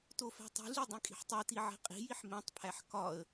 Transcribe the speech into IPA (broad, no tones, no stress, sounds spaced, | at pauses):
t o f æ̤ tˤ i̤ ɮ i dˤ ĩ kʼ i̤ ħ tˤ e t i ʕ e̤ qʼ i̤ j i ħ m ẽ tˤ pʰ æ ħ k ɒ ə̯